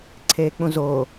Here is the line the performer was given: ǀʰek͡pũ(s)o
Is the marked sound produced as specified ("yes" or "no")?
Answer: no